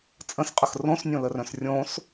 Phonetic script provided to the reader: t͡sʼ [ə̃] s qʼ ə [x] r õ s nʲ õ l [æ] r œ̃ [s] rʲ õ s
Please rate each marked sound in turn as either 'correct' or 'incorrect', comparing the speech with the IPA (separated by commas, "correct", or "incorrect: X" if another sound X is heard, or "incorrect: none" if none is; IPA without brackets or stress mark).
correct, correct, incorrect: ə, correct